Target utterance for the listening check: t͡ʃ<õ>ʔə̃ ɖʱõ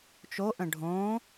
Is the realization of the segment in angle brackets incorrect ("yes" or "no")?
yes